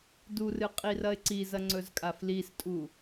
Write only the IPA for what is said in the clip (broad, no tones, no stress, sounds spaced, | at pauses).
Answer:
d u r ɨ qʼ i r ɐ ɪ̯ ǀ i z ɐ ŋ͡ǀ ɵ z kʼ a f l i s tʼ u